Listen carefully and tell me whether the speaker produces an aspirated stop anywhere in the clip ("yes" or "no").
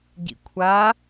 yes